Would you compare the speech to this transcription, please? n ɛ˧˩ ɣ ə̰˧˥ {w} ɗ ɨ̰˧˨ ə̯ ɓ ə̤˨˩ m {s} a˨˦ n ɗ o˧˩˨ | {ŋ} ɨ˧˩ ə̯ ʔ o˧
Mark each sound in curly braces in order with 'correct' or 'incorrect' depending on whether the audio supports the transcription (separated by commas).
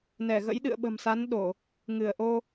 incorrect, correct, correct